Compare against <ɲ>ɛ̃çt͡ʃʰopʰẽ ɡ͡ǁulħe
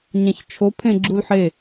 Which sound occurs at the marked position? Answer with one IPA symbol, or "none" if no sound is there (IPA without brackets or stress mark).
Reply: ɲ